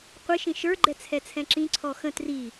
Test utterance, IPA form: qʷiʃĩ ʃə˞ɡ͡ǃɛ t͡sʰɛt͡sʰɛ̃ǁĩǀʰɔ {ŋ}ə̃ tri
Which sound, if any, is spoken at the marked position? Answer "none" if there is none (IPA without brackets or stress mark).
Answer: x